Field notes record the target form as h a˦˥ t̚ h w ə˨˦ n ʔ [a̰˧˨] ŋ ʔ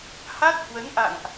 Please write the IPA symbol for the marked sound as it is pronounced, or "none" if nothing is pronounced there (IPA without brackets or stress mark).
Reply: a̰˧˨